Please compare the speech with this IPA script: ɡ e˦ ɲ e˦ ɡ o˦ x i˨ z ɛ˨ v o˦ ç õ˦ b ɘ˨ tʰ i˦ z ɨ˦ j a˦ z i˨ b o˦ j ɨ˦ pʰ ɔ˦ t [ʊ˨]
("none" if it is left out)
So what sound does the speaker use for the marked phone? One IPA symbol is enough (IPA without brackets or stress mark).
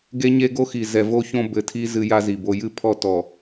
ɔ˨